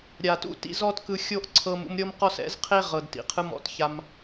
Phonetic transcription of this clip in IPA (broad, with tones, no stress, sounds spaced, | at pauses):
ɾʲ a˨ t ṵ˦ t ḭ˦ z ɔ˦ t k ɯ˧ xʲ o˦ ʔ ǀʰ ɤ˧ m ṵ˧ m ɾʲ ɤ˦ m q ɔ˦ s ɛ̰˦ z qʰ e˦ ʁ ɤ˨ d t ḭ˨ qʰ ɯ˧ m ɔ̰˦ t ç a˧ m